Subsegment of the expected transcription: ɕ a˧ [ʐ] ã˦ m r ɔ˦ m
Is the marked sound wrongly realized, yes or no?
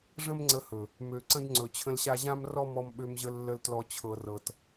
yes